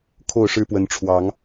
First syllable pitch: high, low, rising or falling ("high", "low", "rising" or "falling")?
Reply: falling